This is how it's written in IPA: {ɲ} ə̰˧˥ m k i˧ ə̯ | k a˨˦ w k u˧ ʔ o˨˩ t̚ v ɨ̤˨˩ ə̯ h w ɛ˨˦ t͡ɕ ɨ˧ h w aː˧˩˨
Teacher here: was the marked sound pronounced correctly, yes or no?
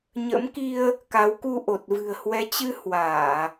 yes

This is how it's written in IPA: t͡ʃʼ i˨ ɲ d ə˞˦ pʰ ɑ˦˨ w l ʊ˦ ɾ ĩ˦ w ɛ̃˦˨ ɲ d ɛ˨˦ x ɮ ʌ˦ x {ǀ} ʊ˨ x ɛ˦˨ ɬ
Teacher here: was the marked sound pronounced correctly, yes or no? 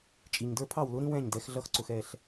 yes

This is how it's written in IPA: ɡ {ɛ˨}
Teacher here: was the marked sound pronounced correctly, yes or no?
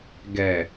yes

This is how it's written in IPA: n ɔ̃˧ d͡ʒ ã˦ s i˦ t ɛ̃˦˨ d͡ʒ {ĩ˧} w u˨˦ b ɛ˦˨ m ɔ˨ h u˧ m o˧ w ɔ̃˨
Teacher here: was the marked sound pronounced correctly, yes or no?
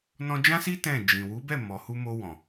no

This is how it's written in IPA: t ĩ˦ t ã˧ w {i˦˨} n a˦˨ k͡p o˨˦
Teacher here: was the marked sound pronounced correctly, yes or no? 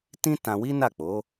no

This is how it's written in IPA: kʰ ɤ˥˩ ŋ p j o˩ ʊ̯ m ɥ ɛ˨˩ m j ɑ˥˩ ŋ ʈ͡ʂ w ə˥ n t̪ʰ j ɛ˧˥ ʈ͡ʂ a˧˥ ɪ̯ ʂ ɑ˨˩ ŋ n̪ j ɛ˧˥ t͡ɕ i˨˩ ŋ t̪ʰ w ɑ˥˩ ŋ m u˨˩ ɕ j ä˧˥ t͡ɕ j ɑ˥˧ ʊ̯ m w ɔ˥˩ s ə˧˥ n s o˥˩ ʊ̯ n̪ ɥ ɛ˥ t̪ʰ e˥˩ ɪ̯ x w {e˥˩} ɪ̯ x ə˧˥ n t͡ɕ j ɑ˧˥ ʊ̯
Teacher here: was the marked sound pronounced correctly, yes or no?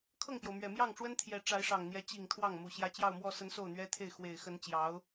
no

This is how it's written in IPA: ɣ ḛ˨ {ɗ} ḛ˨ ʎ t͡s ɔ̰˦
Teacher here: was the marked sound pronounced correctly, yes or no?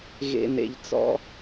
no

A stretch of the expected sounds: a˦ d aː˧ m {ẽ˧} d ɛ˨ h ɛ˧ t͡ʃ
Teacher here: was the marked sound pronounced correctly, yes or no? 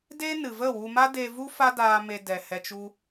no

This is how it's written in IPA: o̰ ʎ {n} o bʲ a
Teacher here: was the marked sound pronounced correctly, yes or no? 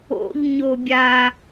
no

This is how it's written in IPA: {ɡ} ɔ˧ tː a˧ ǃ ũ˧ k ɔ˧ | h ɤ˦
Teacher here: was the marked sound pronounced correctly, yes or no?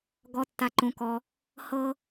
yes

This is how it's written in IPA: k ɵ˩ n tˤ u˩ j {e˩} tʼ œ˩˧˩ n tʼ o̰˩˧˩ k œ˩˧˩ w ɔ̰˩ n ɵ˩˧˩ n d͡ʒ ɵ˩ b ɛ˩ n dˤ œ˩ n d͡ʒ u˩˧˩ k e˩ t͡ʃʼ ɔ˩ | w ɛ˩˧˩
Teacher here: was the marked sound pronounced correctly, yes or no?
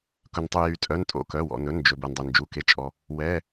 no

